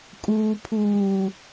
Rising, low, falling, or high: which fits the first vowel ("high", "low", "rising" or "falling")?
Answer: low